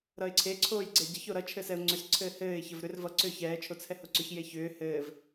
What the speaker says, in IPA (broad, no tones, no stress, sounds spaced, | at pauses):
ɾ ʌ ɪ̯ ǀʰ e ǀʰ oː j ɡ͡ǀ ɛ ɟ ʌ ç o ɾ ʌ t͡ʃʰ ɘ s ɛ ʊ̯ ŋ͡ǀ ʏ s ǀʰ ɘː h ɘː ɪ̯ ç ə v ɾ ʏ r v ʌ ǀ ʏː ç ɛː t͡ʃʰ o t͡sʰ ɛ h o ǀ ʏ ç j e ç ʏː h ɘː v